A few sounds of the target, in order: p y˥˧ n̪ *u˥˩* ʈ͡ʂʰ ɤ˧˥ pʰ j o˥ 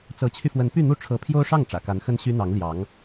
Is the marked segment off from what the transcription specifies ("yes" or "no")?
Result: no